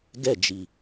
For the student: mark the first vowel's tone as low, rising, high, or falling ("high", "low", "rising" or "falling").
falling